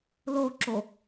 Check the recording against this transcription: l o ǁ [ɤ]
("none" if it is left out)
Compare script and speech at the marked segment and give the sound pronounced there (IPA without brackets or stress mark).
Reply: o